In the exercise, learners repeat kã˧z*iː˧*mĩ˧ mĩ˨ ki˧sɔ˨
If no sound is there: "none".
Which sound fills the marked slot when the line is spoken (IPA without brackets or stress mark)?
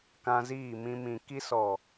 iː˦˨